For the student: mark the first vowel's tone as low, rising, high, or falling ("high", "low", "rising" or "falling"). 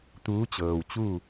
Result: rising